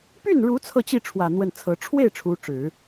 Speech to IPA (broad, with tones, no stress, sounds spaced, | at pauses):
p y˥˩ n ɻ u˧˥ t͡sʰ ɤ˥˧ t͡ɕ i˥˩ ʈ͡ʂʰ w ä˨˩ n̪ w ə˥˩ n t͡sʰ ɤ˧˥ ʈ͡ʂʰ w e˥˩ ɪ̯ ʈ͡ʂʰ u˧˥ ʈ͡ʂ ɻ̩˨˩˦